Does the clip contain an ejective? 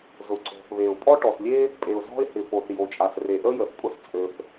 yes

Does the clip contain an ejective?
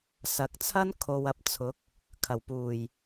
no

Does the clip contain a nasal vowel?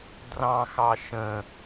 yes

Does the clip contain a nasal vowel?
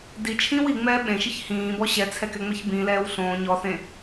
yes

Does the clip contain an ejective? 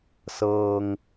no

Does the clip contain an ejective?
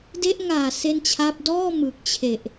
no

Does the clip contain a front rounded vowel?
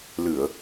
no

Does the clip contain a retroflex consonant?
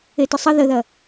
no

